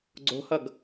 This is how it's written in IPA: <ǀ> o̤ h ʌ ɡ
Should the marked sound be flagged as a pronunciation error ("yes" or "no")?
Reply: yes